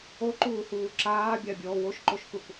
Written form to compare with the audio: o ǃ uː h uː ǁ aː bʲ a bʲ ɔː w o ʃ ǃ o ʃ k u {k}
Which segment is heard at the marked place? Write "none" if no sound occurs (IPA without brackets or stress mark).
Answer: k